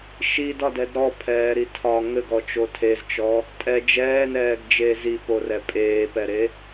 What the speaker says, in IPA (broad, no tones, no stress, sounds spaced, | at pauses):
ʃ i d ɒ d ɛ d ɾ ɔ pʰ ɛː ɾ i tʰ ɒ ŋ ɘ ɡ ɔ t͡ʃ o tʰ e z t͡ʃ ɔ | tʼ ɛ d͡ʒ ɛː n ɛː ɡ d͡ʒ eː z i p o r ɛ pʼ eː p ɛ ɾ e